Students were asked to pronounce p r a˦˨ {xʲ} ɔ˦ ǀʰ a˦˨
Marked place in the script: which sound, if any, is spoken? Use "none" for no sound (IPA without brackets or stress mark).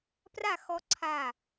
x